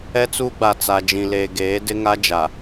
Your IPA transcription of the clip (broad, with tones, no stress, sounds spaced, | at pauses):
ɛ˦ t͡s uː˦ ɡ͡b a˨ t͡s a˨ d͡ʒ ĩ˨ l eː˨ ɡ eː˨˦ d ɪ˦ ŋ a˦ d͡ʒ a˨